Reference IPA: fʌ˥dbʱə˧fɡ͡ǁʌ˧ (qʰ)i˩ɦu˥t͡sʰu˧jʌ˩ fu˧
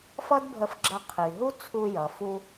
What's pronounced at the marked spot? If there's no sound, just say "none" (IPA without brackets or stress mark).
qʰ